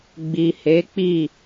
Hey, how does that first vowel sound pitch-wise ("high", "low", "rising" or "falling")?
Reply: low